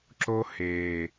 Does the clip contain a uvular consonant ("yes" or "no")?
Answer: no